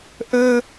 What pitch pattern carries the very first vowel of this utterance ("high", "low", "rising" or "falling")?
high